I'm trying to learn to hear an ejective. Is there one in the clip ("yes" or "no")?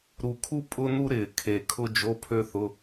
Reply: yes